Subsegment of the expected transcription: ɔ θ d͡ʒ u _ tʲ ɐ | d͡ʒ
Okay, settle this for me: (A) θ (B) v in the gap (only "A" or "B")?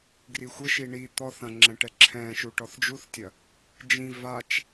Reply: A